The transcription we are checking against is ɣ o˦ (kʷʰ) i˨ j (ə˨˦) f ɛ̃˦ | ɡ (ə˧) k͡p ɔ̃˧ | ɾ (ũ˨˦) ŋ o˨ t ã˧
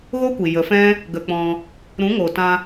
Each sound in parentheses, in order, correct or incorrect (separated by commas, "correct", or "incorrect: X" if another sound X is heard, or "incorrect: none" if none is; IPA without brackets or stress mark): incorrect: kʷ, correct, correct, correct